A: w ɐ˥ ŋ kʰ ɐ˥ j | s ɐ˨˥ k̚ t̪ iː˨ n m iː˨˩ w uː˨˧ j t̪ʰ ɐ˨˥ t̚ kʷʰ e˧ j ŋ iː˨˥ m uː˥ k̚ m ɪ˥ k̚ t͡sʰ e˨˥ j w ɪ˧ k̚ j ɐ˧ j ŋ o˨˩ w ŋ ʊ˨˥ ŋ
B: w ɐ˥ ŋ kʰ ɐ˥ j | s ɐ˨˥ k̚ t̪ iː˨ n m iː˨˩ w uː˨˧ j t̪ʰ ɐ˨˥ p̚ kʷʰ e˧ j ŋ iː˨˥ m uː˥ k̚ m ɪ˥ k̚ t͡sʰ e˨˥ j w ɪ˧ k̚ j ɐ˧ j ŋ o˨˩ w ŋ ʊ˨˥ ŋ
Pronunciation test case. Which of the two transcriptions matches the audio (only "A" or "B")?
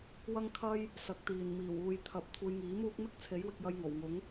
B